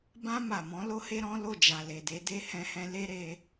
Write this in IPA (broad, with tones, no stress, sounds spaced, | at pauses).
b ã˧ m a˨ m ɔ̃˨˦ l o˦ h e˦ ɾ ɔ̃˦ l o˦˨ d͡ʒ a˨ l e˨ d e˨˦ d e˦ h ɛ̃˧ h ɛ̃˧ l e˦ ɾ e˧